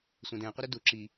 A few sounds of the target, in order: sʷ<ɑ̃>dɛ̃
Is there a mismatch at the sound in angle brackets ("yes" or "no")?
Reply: yes